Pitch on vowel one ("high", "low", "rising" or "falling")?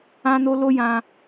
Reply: high